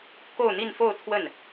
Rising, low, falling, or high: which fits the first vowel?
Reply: falling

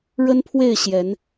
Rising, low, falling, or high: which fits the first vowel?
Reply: high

